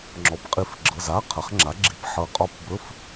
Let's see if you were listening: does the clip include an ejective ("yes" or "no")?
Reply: yes